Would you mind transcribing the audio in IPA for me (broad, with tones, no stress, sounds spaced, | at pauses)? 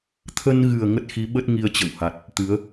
t̪ʰ ə˧ n ɣ ɨ˨˩ ə̯ ŋ ə˦˥ t̚ x i˨˦ ɓ ə˦˥ t̚ ŋ i˧ ə̯ t͡ɕ ə̰˧˨ w h a˨˩ t̚ | t̪ ɨ˨˦ ə̯